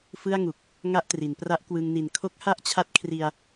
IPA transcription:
fɯ˥˩a̯ŋu˨˩k̚ | ŋa˥˩ʔtri˩˦n pra˦˥ʔkwɯ˧ŋni˨˩n kʰo˦˥k̚ha˥˩ʔt͡ɕʰa˦˥t̚kʰri˧a̯

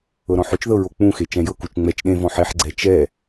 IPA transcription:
ɤɾɔ̃ħot͡ʃðɤ ɹok͡pũxe t͡ʃɛ̃jɤkut͡ʃ ŋ͡mɛt͡ʃ ɗẽvɔ̃ ħeħɡ͡ǀɛ t͡ʃɛ

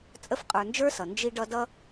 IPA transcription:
t͡sʼə˦fqʼə˞˨nd͡ʒə˞˥sʌ˩ nd͡ʒi˦ɖʌ˦ dʌ˦

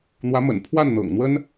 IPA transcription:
n̪wä˧˥mə̰˨˩n pʰwa˥˩nn̪ɤ̰˨˩ŋn̪wə˥n

